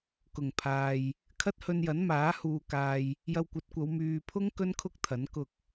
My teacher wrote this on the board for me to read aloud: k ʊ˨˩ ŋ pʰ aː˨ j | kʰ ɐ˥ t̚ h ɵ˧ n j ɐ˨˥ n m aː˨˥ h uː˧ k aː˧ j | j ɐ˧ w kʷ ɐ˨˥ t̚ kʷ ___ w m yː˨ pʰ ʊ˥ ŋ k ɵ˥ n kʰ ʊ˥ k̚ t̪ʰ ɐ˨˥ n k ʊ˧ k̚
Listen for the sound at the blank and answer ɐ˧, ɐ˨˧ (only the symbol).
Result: ɐ˨˧